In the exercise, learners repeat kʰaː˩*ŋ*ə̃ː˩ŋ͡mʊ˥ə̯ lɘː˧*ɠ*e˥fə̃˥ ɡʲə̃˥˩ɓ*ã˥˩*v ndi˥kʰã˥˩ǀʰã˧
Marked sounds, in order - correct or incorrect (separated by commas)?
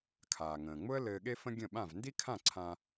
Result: correct, correct, correct